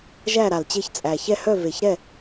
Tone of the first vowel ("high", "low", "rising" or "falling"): falling